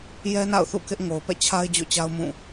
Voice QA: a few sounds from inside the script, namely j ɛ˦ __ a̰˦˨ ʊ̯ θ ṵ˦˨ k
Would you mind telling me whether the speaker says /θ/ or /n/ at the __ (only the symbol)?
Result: n